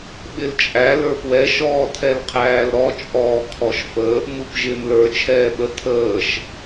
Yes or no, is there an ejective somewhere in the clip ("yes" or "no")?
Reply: yes